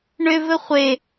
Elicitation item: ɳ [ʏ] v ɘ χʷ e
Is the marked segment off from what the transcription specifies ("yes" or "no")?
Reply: no